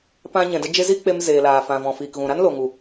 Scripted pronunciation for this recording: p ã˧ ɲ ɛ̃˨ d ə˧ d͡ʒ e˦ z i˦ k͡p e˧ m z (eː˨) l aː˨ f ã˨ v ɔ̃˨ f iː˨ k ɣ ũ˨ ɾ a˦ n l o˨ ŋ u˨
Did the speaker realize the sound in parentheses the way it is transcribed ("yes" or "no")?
yes